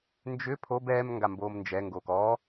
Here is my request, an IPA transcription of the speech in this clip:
n d͡ʒ ʏ pʰ o b ɛː m ŋ ɡ a m b oː m n d͡ʒ ɛ ŋ ɡ oː k ɔ

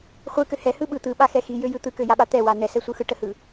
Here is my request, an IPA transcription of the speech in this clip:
χʷ ɯ k ø h ɛ h ɯ ɓ ɯ t̪ ɯ ɓ a x ɛ x i j ø j ɯ t̪ ɯ k ø j a ɓ a t̪ ɛ w a n ɛ s ɛ sʷ ɯ x ɯ ʈ ə h ɯ

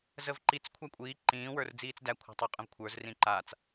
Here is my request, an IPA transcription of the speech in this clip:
z ə v ǃ i t͡s kʷʰ a kʷʼ iː ǃ ĩː w ə˞ r d͡z iː t͡s d æ kʷʰ a̤ tˤ u qʼ ə̃ v kʷʰ ə˞ z r ĩ ǃ a t͡s

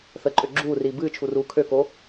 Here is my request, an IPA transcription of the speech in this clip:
θ ə ǃʼ ø ɡ͡ǁ uː r iː b ɨː t͡ʃʰ u r uː kʰ ø k o

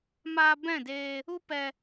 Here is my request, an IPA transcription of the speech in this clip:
m aː˧ b ɛ̃˦˨ d eː˧ | u˦ p ɛ˧

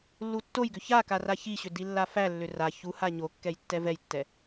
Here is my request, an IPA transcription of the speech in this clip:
lː u tː o j ɡ ʏ ç a k a r a ç i ɕ ʏ d i lː a f æ lː ʏ r a ç u h a ɲ o kː ɛ j tː ɛ v ɛ j tː ɛ

